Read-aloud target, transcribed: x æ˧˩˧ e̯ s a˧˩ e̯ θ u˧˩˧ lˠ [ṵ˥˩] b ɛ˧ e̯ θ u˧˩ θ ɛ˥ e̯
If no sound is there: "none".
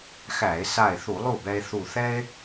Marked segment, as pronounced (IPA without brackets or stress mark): u˥˩